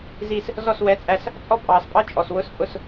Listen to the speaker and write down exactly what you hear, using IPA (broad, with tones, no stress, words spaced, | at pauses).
zi˥˨s | zɔ˥˨swɛ˧˥˧t͡sʼæ˥˨s | t͡sʼɔ˥˨pʼɑː˨spʼɑ˦˥ t͡ʃʼɔ˨swʊ˦˥spʼʊ˥˨s